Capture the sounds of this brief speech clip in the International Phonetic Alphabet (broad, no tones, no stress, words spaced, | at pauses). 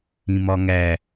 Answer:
ĩmɒŋæ